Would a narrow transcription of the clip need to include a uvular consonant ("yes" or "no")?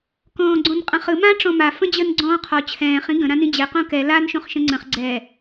yes